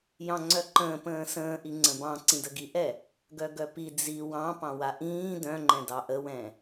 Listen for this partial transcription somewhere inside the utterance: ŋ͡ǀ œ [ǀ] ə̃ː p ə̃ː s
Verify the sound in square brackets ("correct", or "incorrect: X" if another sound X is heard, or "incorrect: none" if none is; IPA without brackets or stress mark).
incorrect: ǃ